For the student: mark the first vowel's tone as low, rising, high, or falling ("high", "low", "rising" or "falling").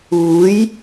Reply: rising